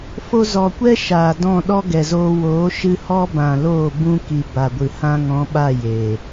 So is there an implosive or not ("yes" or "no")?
yes